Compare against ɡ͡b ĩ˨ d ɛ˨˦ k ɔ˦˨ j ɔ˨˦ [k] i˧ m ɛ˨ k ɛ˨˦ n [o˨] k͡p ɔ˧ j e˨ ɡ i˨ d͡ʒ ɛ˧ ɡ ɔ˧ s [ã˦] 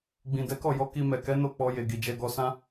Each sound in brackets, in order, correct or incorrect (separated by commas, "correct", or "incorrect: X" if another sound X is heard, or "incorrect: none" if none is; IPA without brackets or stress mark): correct, incorrect: o˦˨, correct